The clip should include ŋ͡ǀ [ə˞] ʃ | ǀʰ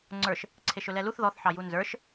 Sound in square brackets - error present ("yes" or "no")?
no